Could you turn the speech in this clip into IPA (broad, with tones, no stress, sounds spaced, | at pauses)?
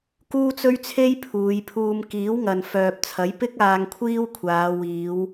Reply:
k uː˥ t͡s ɵ˥ ɥ t͡sʰ e˥ j pʰ uː˨˧ j pʰ uː˧ m k iː˨˥ w ŋ ɐ˨ n f œː˨ p̚ t͡sʰ ɐ˨˥ j p ɪ˥ k̚ aː˧ ŋ kʷʰ iː˥ w kʷʰ aː˨˧ w iː˨˧ w